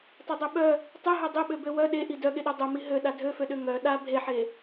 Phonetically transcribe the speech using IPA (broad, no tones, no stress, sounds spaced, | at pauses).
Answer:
tˤ e dˤ ø ɓ œ | tˤ ɛ ɦ œ dˤ ø ɓ ø b ø w œ ɗ e ʔ i d œ ɠ e ɗ œ dˤ œ m i ɦ ø ɗ a dʱ ø f ø ɗ ø ŋ œ ɗ a bʱ e ħ e